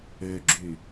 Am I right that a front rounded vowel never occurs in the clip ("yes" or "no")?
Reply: no